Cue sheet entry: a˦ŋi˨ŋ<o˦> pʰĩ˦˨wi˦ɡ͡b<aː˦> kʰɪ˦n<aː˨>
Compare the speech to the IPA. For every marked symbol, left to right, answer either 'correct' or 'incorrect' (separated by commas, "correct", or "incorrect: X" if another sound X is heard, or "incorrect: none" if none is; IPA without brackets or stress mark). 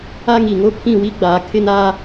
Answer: correct, incorrect: aː˨, incorrect: aː˦